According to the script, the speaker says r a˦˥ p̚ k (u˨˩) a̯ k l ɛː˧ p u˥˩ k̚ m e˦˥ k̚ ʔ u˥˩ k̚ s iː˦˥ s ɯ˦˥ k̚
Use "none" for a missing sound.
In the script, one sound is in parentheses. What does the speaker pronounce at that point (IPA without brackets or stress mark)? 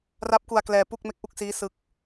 u˧